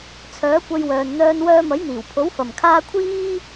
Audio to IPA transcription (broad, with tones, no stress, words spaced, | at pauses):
t͡sʰœː˨˥kʷɐ˧jwœː˨n n̪œː˧n wœː˧mɐ˨˥jn̪iː˨˩wpʰo˨˥w fɐ˨mkʰaː˥ kʷʰiː˥